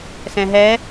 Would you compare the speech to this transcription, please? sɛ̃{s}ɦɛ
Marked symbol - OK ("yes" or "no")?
no